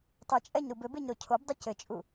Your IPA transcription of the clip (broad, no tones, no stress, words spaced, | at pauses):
tˤɘt͡ʃʼɛɲɾub ɘbeɲɾo cʰobdˤu cɘt͡ʃʼu